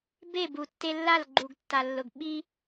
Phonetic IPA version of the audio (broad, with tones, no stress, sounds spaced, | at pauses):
b e˦˨ b u˨ tː e˧ lː a˦˨ l ɡ͡ǃ u˨ ɡ tː a˨ lː ʊ˨ ɡ ɓ i˧